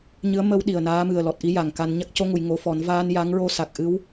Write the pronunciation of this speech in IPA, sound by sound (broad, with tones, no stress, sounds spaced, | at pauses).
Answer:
ɲ ɨ˧˥ ə̯ m ə˧ w ɗ i˨˩ ə̯ n aː˧˥ m ɨ˨˩ ə̯ l ɔ˨˩ t̚ ʔ i˧˥ j a˨˩ ŋ k a˧ n ɲ a˦˥ k̚ c o˧˥ ŋ u˨˩˨ j ŋ o˧˥ f ɔ˨˩˦ n v aː˧ n j a˧˥ ŋ ɹ o˧ s a˨˩ k̚ ʔ ɨ˧˥ w